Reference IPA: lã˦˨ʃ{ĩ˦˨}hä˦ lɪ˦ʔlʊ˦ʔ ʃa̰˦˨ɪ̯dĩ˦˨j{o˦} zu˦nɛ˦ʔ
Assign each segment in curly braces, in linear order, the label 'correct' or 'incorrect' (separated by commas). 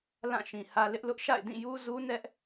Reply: incorrect, incorrect